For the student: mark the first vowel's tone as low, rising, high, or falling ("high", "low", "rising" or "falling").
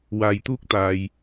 low